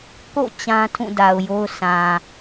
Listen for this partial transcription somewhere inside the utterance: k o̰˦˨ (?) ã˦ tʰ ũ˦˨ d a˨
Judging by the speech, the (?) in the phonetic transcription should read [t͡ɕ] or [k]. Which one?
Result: t͡ɕ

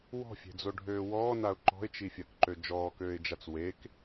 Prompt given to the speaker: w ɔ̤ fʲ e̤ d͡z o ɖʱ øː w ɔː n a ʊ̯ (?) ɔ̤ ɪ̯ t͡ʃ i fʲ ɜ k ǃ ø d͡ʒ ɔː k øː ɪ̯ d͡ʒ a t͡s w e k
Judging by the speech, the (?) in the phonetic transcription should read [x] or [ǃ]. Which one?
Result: ǃ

